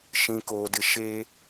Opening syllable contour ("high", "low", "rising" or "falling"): high